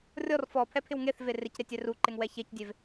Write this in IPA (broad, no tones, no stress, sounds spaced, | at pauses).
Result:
rʲ ɔ r f ɔ pʰ ɛ pʰ ɪ w ŋ e θ v e r ɪ c ɾ e tʲ ɛ r u ǃ ɪ ŋ w ɛ ç e c dʲ e v